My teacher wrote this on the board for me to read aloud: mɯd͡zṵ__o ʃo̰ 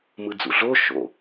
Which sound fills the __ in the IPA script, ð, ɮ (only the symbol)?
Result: ɮ